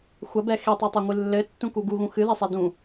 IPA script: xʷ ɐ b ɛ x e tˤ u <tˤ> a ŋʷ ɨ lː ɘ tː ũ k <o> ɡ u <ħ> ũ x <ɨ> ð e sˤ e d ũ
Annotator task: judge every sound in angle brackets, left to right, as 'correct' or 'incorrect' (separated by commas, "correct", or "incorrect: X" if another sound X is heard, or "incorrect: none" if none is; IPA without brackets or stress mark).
correct, incorrect: u, incorrect: ɣ, correct